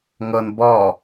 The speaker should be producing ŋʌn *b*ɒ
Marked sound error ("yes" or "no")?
no